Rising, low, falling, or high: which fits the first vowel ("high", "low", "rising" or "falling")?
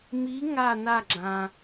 rising